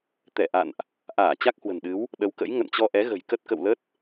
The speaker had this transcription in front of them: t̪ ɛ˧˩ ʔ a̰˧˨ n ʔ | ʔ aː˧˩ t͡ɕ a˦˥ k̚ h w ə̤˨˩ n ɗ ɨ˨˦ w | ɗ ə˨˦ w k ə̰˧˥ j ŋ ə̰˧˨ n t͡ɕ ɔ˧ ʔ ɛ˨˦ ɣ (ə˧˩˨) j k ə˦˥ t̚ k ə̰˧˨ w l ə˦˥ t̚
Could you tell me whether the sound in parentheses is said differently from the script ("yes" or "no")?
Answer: yes